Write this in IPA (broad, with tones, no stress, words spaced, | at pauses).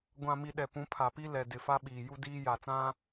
ɡʷã˨mi˨ ɗɛ˨ pũ˨˦pʰa˨pi˦ lɛ˨dɪ˨ fa˦ɓiː˨ ju˦diː˦ ja˨t͡sã˦